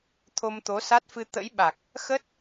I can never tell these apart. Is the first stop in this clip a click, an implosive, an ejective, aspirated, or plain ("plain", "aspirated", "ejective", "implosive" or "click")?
aspirated